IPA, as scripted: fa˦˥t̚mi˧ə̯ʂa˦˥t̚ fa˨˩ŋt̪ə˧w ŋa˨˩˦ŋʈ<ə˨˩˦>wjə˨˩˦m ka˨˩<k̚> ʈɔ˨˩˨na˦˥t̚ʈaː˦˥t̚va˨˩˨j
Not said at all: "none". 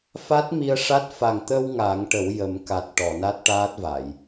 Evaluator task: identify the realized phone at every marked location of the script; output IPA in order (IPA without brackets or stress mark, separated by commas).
ə˨˩˦, t̚